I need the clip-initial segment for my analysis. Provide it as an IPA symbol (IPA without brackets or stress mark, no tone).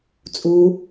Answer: t͡sʼ